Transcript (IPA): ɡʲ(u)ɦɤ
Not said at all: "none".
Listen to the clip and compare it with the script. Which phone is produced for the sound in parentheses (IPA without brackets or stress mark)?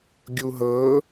u